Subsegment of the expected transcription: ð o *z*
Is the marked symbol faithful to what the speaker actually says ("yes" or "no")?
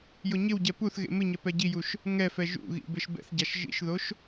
no